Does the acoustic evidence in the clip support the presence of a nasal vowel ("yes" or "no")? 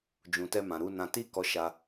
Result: yes